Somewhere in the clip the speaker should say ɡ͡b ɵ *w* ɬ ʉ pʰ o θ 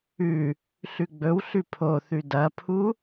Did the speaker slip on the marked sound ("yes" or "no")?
no